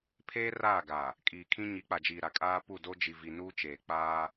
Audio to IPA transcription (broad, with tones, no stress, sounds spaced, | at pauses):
pʰ eː˦ r aː˦˨ ɡ a˨ | kʼ iː˨ kʰ ĩ˦ ɲ i˨˦ k͡p a˨ d͡ʒ iː˨ ɾ a˨ kʼ aː˦ p u˦˨ d o˦ d͡ʒ i˨ v i˨ n uː˦ t͡ʃ eː˨ k͡p aː˦